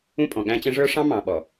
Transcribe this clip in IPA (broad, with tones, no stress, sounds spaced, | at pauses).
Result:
ũ˦ pʼ ɔ̃˨ ɠ æ̃˦ t͡ɕ ə̃˦ ʐ ə˞˦ ʂ ɑ̃˦ m ɑ̃˨ ɓ ɔ˨